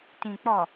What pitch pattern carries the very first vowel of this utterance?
low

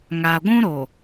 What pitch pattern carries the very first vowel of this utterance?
low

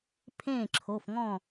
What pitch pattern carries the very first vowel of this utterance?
falling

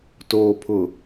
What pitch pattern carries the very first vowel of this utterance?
low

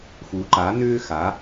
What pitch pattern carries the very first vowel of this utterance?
rising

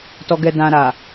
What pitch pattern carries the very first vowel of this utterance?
low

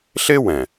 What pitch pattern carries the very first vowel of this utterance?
high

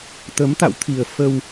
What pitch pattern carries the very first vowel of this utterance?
rising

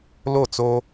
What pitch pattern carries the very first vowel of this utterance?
falling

